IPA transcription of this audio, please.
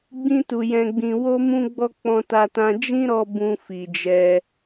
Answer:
ɡ͡bĩ˧tu˨ jɛ̃˨ɡ͡bĩ˨ wo˧mũ˧ɡ͡bɔ˧ k͡pɔ̃˧ta˧tã˧ d͡ʒĩ˦ɾɔ˧ bũ˧fi˨d͡ʒɛ˧

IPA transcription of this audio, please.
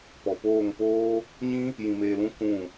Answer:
pɔ˨poː˦˨ŋpoː˦ | ɲĩ˦ | jĩ˧meː˧lũ˦ kũ˦˨

